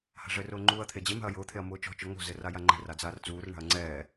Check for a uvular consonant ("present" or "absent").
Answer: absent